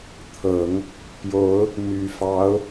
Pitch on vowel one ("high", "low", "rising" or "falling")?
low